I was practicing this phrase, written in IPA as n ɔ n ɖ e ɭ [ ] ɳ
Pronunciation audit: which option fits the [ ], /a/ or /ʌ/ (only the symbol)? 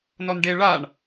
a